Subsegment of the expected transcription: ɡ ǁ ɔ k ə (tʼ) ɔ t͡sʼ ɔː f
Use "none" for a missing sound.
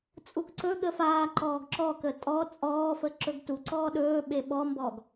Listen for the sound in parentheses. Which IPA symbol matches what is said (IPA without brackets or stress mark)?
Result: tʼ